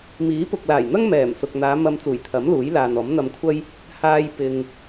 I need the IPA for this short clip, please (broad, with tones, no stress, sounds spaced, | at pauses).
m iː˨˥ p ʊ˨ k̚ l aː˨˩ j n̪ ɐ˥ ŋ m ɛː˨˩ m s ʊ˨ k̚ n̪ aː˨˧ m ɐ˧ m t͡s uː˨˩ j t̪ʰ ɐ˨˥ m l uː˨˥ j l aː˨ n ɔː˨˥ m n̪ ɐ˧ m kʷʰ ɐ˥ j | h aː˧ j p ɪ˧ ŋ